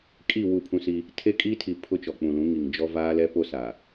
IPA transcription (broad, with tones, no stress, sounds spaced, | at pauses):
kʼ i˦˨ w u˦˨ pʰ ũ˦ s i˦ | tʰ e˦ kʼ i˦ tʰ i˨ pʰ ʊ˦ t͡ʃ ɔ˨ k͡p ũ˨ l ũ˨˦ ŋ i˨ ŋ d͡ʒ ɔ˦ v aː˦ l ɛ˦ p o˦ s a˨